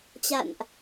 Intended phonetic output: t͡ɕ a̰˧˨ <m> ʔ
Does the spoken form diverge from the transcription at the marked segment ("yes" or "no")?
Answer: yes